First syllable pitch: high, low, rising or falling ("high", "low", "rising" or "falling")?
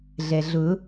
low